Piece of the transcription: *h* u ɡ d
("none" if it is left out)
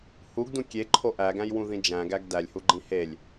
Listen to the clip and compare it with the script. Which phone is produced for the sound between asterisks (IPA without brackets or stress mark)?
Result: h